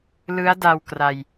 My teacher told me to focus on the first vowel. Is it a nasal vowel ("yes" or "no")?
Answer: no